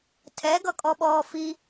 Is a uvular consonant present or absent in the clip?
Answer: absent